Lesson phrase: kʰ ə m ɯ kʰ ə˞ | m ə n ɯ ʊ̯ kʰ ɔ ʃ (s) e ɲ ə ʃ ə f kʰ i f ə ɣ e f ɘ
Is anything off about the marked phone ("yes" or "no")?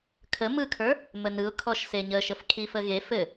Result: no